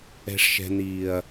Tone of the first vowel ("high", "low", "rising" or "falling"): high